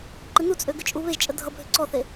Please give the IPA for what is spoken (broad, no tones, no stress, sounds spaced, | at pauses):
ǃ ɪ n u t͡sʼ ø ɡ ʏ t͡ʃʼ u β e ʒ t͡ʃʼ ə dʱ ʌ bʱ ʏ ǀ ɔ θ e